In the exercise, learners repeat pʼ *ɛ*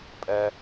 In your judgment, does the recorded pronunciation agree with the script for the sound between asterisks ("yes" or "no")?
yes